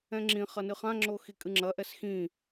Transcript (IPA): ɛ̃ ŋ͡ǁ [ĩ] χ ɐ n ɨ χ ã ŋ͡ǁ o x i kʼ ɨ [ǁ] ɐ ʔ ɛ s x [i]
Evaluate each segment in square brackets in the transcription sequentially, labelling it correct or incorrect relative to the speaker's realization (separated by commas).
correct, incorrect, incorrect